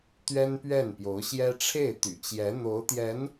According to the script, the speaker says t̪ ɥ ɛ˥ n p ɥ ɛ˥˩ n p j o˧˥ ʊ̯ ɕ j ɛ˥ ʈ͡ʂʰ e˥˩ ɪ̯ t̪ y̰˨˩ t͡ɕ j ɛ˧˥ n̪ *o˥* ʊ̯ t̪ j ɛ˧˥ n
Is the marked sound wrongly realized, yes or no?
yes